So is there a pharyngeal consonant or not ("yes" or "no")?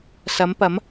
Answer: no